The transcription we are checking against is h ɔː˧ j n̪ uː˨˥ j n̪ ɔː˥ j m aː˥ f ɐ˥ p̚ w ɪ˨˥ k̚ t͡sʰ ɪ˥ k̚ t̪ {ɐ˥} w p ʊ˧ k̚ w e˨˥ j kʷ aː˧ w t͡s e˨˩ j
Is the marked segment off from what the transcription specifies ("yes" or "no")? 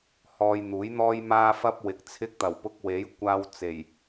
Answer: yes